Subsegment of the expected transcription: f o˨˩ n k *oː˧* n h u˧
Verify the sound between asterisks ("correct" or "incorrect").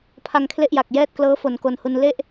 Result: incorrect